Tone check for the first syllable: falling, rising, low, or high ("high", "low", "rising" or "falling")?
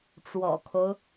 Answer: low